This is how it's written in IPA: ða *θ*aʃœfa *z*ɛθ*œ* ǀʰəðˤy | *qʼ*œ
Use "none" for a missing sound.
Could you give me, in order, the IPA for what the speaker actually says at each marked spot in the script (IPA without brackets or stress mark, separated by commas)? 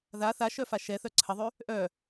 θ, ʃ, œ, ʔ